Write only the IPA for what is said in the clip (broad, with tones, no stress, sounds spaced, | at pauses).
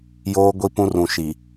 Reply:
j oː˦ ɡʷ i˦ p ũ˦ r ũ˨ ʃ i˨